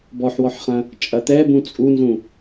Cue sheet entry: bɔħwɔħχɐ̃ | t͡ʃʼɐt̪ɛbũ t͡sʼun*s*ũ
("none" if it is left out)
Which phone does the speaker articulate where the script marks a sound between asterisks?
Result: z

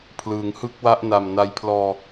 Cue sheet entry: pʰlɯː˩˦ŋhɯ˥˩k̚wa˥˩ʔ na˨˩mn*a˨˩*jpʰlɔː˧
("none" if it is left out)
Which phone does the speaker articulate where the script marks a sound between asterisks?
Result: a˧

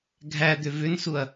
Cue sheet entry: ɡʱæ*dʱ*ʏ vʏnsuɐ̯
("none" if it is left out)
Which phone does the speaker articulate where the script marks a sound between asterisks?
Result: d̪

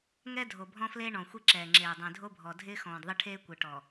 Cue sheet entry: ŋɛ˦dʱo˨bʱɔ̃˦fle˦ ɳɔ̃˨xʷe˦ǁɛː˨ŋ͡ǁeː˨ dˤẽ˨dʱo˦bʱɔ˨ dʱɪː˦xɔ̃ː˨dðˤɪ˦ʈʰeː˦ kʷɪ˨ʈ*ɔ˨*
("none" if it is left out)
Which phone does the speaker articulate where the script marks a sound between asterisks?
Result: ɔ˨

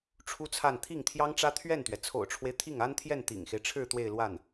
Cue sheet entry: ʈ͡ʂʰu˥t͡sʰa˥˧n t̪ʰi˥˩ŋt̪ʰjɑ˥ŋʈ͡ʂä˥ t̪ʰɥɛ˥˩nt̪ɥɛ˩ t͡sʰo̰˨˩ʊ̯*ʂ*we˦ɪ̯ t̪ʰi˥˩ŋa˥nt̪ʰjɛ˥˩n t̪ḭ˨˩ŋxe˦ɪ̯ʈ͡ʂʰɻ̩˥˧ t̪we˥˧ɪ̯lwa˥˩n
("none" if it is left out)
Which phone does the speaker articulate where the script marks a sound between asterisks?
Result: ʈ͡ʂʰ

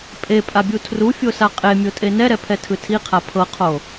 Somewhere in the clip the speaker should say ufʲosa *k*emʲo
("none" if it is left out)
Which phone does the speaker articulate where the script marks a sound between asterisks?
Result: qʼ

